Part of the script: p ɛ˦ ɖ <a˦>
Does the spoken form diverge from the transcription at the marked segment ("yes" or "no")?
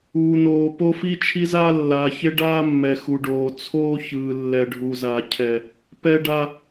no